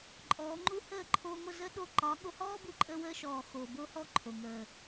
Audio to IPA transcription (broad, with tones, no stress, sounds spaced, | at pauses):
ǃʼ ɔː˨˦ ŋ͡ǃ u˦ h əː˦˨ ǃʰ oː˧ ŋʷ ə˦˨ z ə˦ ɗ o˧ ǃ ɒ˨˦ ɠ o˧ h ɔː˦ b u˧ ǃʼ əː˧ w əː˧ ʃ ɔː˨ x oː˨ b o˦ h ɔː˦ ǃʰ o˨ ŋ əː˨